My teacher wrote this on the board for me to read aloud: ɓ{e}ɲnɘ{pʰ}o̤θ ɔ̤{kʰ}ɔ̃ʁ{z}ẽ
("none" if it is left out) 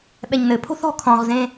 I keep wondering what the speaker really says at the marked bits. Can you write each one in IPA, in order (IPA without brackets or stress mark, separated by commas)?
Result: ɛ, pʰ, kʰ, z